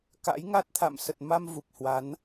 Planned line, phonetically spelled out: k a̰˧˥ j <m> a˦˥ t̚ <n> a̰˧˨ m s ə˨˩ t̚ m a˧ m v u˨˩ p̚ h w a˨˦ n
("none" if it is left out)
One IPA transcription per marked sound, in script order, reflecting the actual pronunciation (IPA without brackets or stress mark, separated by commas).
ŋ, t̪ʰ